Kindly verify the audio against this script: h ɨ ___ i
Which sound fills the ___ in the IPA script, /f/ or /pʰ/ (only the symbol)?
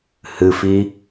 f